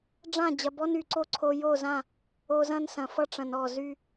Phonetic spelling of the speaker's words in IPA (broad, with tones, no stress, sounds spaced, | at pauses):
ɖ͡ʐ ã˦˨ d͡ʑ ɐ˨ b ɔ˦ n y˨ ǀ o˦ ǀʰ o˨ j o˦˨ z ã˦˨ | o˨ z ɐ̃˦ n s ɐ̃˨ f ʌ˦ ʈ͡ʂ ɐ̃˨ n ɔ˦˨ z y˦